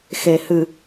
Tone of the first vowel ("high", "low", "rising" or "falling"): low